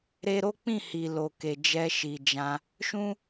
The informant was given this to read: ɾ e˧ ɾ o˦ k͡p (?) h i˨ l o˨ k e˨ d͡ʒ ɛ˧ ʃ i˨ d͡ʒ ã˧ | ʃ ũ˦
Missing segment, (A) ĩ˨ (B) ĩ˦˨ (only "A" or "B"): B